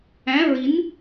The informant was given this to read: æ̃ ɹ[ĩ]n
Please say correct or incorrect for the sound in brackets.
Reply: incorrect